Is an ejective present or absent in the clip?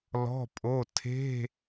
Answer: present